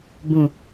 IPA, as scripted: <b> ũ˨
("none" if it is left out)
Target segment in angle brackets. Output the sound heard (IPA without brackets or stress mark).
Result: b